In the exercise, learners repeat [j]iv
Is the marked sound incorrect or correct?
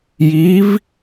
correct